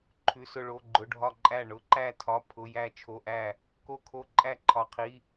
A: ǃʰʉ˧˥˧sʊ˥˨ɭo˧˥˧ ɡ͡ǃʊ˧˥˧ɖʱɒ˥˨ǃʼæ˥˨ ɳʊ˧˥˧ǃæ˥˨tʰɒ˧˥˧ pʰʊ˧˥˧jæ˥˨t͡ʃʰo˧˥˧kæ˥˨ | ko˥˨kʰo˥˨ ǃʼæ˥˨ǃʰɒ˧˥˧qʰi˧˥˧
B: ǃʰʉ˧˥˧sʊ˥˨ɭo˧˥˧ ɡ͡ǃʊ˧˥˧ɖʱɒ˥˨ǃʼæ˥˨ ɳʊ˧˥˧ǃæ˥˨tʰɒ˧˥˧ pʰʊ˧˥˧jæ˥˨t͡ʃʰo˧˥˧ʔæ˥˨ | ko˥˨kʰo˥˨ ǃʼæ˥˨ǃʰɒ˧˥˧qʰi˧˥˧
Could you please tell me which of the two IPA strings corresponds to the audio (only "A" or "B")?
B